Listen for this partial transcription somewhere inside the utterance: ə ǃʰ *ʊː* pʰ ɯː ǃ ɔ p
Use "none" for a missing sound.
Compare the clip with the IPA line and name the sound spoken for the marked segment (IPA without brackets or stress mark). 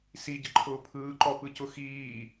ʊː